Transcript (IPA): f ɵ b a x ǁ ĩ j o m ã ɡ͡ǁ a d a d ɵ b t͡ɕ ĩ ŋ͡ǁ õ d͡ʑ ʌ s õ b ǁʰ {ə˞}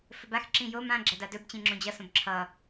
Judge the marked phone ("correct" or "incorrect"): incorrect